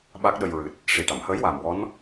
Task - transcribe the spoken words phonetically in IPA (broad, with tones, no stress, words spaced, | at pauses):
ɓa˦˥k̚ɗə˧j ɹɨ˨˩t̚ | ʂi˨˩ʈa˨˩˨mhəː˧˥j waː˨˩mwɔ˧˥n